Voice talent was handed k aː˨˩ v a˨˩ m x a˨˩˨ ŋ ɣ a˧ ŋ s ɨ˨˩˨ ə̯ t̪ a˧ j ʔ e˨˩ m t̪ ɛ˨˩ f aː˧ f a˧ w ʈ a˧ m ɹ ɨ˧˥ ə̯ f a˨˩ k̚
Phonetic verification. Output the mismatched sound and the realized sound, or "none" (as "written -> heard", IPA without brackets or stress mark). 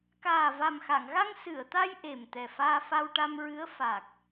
none